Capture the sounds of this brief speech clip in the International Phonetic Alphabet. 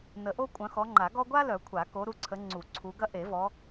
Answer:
nə˨˩˦ʔo˥ kʷʼœ̃˨˦xɔ˨˦ŋ͡ǃa˨˩˦ ɡɔ˥ ɡʷa˥lœ˨˩˦ kʷʰa˨˩˦ko˨˦ ɾu˨˦ǀʰə˨˦ ŋ͡ǀu˨˩˦ǀʰu˨˦ɡɐ˥ ʔe˨˩˦vɔ˨˦

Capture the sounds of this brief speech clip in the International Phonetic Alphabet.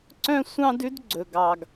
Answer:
ǀœ̃˦sʷɑ̃˦dʉ˦d ɡ͡ǀɵ˨ɡɑ˨ɡ

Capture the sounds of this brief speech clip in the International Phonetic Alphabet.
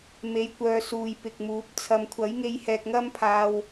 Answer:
me˧jkʷœː˧ suː˨jpɪ˨k̚muː˨˥p̚ t͡sʰɐ˨mkʷʰɐ˨˥jŋe˧j hɛː˧k̚ŋɐ˥mpʰaː˧w

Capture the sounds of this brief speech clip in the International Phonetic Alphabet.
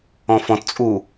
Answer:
ɔ̃fɔ̃tt͡sʼu

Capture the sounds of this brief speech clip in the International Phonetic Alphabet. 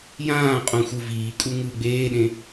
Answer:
jãː qʼũxʷɯviːkʼu ŋɯːɡ͡beːɗẽ

